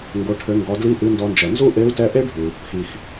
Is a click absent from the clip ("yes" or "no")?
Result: yes